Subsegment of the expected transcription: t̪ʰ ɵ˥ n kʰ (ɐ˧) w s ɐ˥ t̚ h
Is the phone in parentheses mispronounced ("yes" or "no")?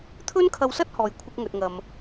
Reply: no